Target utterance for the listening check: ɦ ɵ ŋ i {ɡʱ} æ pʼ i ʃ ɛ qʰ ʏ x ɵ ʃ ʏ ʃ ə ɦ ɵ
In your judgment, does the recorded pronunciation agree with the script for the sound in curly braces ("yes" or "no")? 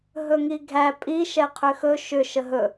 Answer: yes